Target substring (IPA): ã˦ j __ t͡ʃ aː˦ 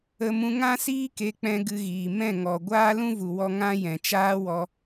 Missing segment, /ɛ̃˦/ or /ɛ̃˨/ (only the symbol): ɛ̃˨